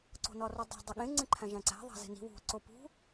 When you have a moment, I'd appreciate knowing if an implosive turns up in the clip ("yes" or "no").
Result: yes